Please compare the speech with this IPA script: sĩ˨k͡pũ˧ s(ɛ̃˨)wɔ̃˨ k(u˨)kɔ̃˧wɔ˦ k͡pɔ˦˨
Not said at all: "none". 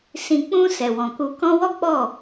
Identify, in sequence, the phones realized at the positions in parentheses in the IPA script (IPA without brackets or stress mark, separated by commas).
ɛ˨, u˨